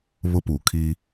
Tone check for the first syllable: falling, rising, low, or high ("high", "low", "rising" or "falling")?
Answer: high